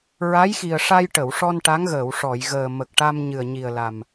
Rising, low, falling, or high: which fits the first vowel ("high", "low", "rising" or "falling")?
rising